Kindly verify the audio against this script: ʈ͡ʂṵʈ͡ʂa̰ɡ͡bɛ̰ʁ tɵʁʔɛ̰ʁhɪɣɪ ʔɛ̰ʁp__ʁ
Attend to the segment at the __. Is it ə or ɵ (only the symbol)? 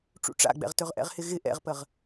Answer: ə